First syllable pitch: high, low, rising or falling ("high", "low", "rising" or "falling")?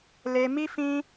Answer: high